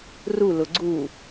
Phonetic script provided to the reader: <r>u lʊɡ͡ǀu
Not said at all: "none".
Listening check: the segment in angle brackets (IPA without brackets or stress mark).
r